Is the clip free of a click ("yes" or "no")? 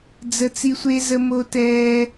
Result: yes